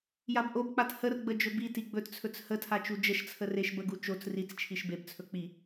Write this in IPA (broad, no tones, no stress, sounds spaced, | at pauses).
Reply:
j a b ʔ o b k͡p a t h ə r ɡ͡b ə d͡ʒ ɵ b i t i ɡ͡b ɵ t t͡sʰ ɵ t͡s h ə tʰ a t͡ʃ u d͡ʒ ə ʃ t͡sʰ ə r e ʃ b ə ɡ u t͡ʃ o t͡s r i t͡s t͡ʃʰ i ʃ b e b t͡sʰ ɵ k͡p i